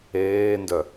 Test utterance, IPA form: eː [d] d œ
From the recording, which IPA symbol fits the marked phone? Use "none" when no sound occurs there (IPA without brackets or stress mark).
n